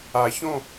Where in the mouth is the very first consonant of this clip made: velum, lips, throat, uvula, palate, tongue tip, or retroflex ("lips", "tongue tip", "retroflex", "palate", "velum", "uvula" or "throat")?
palate